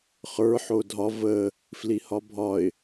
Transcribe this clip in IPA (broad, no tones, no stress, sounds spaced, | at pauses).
χ ə˞ ħ o dʱ ɒ v ə | f l i h ɒ bʱ ɒ ɪ̯